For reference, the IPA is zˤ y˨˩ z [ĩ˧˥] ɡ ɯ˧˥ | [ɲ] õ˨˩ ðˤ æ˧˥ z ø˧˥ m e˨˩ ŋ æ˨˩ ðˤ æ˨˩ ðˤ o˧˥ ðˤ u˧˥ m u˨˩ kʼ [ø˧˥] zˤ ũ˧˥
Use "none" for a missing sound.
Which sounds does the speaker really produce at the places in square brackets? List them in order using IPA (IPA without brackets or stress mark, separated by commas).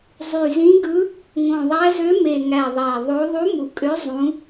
ĩ˧˥, ŋ, ø˧˥